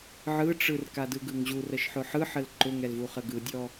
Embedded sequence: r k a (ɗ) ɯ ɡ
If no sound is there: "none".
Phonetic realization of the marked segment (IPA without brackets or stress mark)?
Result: d